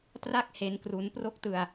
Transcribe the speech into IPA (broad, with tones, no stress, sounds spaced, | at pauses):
t r a˥˩ k̚ h e˦˥ n k r u˦˥ n p r o˥˩ k̚ t ɯ˧ a̯